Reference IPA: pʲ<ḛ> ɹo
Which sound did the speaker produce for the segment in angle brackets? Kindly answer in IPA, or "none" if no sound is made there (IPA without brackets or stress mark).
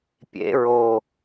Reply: ḛ